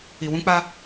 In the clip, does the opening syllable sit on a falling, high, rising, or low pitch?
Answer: low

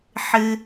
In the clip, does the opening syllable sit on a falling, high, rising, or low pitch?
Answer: high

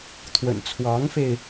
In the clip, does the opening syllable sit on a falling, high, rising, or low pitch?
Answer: low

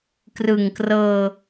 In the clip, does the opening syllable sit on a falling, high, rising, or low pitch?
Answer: low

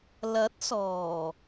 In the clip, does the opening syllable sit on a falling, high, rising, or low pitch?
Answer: rising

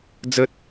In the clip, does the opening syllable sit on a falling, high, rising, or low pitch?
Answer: high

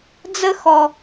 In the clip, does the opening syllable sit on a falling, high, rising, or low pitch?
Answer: high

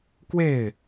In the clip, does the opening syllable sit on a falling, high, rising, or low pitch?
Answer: falling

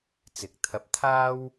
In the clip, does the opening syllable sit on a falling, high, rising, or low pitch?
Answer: rising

